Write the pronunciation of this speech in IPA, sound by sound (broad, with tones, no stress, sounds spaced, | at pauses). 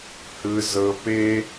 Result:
h ɯ˦ z ɤ˦ p e˦